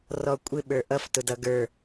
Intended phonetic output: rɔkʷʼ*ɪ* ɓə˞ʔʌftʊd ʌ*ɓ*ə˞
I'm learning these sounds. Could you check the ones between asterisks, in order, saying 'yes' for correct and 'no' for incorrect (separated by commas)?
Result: yes, no